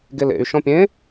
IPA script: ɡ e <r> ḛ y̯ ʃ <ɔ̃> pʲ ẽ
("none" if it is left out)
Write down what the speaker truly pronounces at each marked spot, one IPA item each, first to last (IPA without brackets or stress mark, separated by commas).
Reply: l, ɔ̃